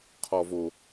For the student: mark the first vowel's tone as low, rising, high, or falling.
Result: low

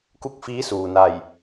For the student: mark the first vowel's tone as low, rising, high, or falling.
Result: falling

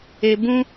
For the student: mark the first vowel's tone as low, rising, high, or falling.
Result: low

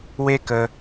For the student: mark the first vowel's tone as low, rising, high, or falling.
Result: high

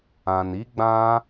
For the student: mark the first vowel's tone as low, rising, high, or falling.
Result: low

